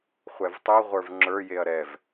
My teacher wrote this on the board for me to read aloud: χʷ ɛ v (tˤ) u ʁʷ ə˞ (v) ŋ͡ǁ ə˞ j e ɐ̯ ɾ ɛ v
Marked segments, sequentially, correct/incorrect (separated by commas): correct, correct